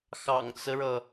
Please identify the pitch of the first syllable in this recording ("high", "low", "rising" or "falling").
low